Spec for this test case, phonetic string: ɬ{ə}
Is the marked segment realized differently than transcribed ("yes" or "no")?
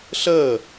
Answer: no